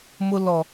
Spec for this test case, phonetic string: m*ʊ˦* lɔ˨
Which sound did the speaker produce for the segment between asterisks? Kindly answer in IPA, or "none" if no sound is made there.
ʊ˦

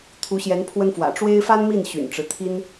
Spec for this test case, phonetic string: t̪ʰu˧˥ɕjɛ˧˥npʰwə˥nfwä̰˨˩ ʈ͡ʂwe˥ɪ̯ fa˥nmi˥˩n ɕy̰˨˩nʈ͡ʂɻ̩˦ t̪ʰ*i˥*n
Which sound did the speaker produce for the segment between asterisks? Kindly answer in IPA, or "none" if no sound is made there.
i˥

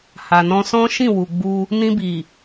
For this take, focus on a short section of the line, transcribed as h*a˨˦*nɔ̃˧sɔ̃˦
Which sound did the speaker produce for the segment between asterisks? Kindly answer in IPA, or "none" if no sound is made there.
a˨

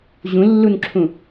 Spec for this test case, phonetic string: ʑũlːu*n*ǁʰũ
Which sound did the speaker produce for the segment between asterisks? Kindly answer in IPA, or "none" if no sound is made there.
n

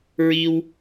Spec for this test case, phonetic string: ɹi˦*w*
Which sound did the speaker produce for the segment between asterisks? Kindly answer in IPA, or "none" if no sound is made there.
w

